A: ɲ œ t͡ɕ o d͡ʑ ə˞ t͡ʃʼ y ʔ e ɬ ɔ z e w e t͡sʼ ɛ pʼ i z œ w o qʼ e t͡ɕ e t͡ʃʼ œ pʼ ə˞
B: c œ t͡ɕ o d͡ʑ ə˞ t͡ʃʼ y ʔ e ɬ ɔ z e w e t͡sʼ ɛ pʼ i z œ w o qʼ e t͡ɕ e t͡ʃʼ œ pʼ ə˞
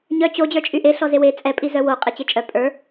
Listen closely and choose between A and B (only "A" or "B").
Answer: A